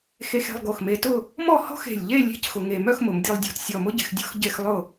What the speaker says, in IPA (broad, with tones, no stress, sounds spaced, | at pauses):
x e˧ x e̤˧ lˠ ɡ o˧˩ x m e˧ t ʊ˥˧ | m ɔ˥˧ h ɔ̤˥ x e̤˧˩ lʲ ʎ e˥˧ lʲ e̤˥˧ c x ʊ˧ ŋ e˧ m œ˥˧ x m ʊ˩˧ m dʲ o˧ lˠ dʲ ɔ̤˧˩ t sʲ ɔ˧˩ m ʊ˥ ɟ e̤˩˧ x dʲ ɔ̤˥˧ x ɟ e˧ x lˠ ʊ˧˩